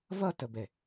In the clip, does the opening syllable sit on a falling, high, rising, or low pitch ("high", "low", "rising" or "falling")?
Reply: falling